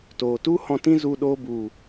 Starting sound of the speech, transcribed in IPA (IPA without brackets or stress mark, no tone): t